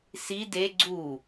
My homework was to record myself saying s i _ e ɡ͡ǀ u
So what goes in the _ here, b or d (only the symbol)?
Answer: d